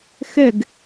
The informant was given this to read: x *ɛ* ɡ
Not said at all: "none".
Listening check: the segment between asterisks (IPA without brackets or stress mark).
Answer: ɛ